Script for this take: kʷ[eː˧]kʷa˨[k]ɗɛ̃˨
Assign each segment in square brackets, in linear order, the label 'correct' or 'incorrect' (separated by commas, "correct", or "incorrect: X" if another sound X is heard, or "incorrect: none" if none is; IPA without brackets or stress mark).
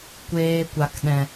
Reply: correct, correct